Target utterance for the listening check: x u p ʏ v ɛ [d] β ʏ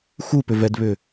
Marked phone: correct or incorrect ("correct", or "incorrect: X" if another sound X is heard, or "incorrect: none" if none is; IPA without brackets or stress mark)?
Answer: correct